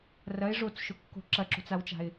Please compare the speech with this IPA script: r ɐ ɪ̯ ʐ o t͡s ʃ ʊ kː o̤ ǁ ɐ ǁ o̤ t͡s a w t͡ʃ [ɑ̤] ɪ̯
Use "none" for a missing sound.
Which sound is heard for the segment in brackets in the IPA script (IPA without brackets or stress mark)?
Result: a̤